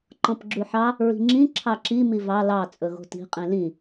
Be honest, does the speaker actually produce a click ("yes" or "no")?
yes